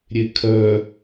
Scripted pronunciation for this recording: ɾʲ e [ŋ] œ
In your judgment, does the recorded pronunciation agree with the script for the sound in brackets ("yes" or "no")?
no